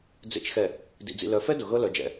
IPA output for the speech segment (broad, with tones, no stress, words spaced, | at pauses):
d͡zḛ˨t͡ʃ xɛ˨ | dḭ˨d͡zḭ˨ lœ˨fɛ˦ dʊ˨ɣɤ˦ lœ˨d͡ʒɛ̰˨